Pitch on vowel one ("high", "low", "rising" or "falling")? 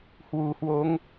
low